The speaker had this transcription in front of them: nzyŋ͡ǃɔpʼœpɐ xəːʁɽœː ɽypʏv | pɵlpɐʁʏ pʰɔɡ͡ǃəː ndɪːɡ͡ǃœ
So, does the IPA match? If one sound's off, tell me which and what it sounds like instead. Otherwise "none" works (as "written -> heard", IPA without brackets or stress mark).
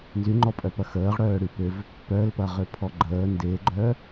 ɵ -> œ